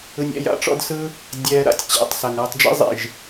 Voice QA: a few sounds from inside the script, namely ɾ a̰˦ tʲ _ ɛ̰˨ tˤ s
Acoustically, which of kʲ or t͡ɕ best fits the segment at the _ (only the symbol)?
t͡ɕ